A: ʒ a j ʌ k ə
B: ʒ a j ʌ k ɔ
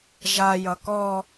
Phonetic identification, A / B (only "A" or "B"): B